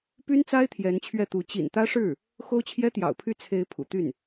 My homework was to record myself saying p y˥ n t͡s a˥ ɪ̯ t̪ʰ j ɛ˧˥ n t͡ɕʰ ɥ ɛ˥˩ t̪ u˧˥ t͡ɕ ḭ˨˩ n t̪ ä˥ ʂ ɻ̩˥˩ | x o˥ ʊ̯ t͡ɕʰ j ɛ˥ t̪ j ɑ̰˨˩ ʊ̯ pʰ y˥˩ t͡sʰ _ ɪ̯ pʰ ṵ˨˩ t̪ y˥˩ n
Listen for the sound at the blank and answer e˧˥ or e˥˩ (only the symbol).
e˧˥